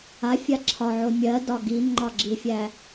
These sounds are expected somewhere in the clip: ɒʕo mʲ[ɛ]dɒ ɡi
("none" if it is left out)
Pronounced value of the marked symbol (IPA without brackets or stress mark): ɜ